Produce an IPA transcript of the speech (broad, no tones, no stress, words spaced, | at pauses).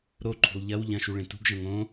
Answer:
ɾoǃʰṳlˠ ʎɐw ʎɐ̃ʃu ɭẽtṳɡʒɐ̃ ŋõ